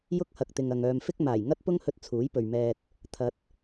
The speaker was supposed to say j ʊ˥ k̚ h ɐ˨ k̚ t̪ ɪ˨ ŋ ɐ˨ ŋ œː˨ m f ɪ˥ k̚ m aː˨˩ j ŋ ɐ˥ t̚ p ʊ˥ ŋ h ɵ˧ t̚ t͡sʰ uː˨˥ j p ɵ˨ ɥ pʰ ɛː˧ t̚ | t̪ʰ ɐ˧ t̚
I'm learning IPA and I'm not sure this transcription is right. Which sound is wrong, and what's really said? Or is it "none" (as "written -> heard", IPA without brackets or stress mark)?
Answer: pʰ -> m